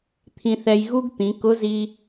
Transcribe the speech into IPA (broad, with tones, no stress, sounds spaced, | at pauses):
t̪ʰ ĩ˧ θ ɛ˧ j ɣ u˥ ɡ t̪ ĩ˩˧ k ʊ˧˥ z i˧